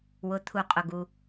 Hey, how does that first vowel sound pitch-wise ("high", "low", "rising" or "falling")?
low